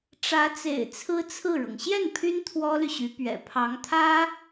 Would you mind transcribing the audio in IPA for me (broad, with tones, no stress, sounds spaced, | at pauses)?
ʈ͡ʂ ä˧˥ t͡s ḛ˨˩ ɪ̯ t͡sʰ ɹ̩˥ t͡sʰ ɹ̩˥˩ ɻ ɤ˩ ŋ ɕ j ɛ˥˩ n pʰ y˥ n t̪ʰ w ɔ˥ l y˨ ɕ y˧˥ p ɥ ɛ̰˨˩ pʰ ɑ˧˥ ŋ t̪ʰ ä˥